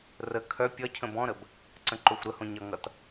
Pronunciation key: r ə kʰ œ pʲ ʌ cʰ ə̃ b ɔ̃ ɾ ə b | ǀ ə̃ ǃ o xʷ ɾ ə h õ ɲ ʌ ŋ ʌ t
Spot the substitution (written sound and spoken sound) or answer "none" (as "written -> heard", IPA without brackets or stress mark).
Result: none